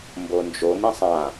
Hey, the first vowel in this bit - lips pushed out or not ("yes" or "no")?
yes